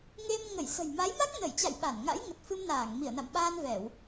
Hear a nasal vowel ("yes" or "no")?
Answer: no